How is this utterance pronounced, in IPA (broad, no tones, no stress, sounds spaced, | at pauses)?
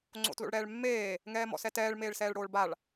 ŋ͡ǀ o̰ t l o̰ ɭ ɽ ɛː ɭ mː eː | ŋ ɛː m ɔ̰ s ɛ t ɛː ɭ m eː ɭ s ɛː ɭ ɽ oː ɭ b a ɭ